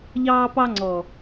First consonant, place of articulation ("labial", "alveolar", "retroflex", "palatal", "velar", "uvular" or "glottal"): palatal